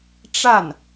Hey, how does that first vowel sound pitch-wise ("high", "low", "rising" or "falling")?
falling